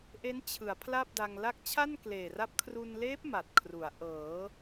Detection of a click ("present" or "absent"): absent